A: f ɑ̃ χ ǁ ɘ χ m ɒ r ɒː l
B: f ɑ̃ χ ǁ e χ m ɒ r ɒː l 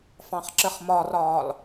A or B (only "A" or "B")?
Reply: A